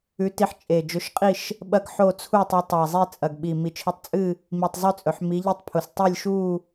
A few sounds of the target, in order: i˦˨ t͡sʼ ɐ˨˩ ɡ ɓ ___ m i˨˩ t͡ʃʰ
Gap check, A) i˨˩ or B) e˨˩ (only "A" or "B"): A